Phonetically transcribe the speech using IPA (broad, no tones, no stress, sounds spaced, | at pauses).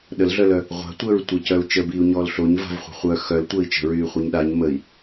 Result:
ɗ ə l ɮ œ l œ | ʁʷ a̤ tʷ əː ɹ tʷ ə c œ u̯ t͡ʃ ə b iː u̯ ɲ ɔː l ɬ o ɲ v a̤ v χʷ a̤ χʷ œ x œ l tʷ əː i̯ t͡ʃ ə̤ ɹ yː χʷ œ ɲ ɗ a ɲ m ə i̯